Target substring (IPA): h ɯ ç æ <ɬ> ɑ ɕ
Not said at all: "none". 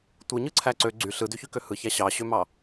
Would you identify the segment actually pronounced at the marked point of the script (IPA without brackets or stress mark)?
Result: ɕ